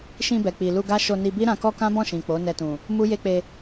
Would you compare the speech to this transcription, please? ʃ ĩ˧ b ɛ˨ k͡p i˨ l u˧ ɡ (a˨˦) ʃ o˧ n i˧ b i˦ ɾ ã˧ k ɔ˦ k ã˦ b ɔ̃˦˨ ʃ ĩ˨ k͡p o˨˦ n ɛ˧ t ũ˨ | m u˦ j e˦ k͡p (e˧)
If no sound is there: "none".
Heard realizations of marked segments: a˦, e˧

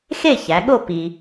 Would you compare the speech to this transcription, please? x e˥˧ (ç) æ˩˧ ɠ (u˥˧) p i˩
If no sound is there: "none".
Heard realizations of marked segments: ç, o˥˧

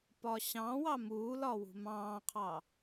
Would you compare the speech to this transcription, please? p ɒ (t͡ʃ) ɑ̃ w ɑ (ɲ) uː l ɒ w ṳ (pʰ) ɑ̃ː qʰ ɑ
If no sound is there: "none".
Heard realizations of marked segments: ɕ, m, m

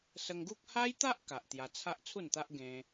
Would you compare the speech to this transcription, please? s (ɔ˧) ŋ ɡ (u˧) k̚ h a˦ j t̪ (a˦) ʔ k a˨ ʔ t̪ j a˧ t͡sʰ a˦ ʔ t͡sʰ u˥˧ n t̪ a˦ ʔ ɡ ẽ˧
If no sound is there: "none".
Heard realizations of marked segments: ə˧, u˦, a˦

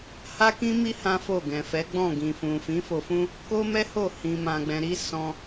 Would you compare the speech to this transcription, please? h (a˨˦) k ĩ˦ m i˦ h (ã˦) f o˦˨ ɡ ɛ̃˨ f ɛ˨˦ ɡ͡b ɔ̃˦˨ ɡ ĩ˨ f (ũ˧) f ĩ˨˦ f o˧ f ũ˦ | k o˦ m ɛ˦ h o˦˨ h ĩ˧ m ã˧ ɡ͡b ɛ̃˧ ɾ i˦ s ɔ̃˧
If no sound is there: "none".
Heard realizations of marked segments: a˦, ã˦, ũ˨

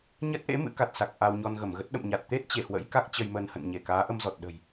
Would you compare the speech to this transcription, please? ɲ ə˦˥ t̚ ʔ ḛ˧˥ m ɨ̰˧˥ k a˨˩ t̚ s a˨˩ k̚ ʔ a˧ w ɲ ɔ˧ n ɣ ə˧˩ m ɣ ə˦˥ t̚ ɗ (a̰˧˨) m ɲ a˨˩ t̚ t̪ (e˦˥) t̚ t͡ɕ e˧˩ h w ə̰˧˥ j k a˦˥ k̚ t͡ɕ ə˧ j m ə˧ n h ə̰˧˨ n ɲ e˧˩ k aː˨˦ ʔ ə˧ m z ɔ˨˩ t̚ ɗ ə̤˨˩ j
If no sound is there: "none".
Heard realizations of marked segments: ə̰˧˨, e˦˥

